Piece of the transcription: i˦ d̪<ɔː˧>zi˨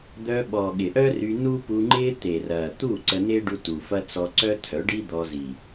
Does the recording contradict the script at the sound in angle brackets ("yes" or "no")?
yes